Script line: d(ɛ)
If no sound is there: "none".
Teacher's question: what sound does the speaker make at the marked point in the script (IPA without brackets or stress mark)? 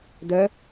œ